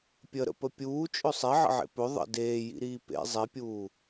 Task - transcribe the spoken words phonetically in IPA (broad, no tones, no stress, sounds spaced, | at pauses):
pʲ ə ɾ ə̰ p ə pʲ uː t͡ʃʼ ɵ sˤ e ʕ ə̰ ʕ ḛ p ɵ ðˤ ə̰ d eː j ḭ ɾ iː p ḛ zˤ i pʲ uː